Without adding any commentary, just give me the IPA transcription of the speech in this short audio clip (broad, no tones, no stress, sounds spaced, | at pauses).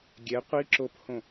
ɡʲ ɛ qʷ i ǁ o p h õ